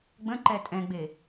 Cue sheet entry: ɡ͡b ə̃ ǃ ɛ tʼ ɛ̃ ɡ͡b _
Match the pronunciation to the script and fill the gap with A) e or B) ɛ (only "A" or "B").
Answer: A